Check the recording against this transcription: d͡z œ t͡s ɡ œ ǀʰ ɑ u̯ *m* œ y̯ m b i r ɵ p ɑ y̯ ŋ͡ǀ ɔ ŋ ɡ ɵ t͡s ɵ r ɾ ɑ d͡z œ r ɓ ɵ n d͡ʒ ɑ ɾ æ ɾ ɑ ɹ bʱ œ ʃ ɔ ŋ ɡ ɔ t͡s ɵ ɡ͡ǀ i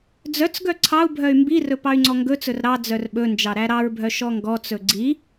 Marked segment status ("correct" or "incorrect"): incorrect